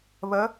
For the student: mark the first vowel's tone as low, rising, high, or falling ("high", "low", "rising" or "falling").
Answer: rising